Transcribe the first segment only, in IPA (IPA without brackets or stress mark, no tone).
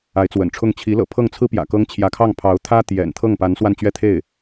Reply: a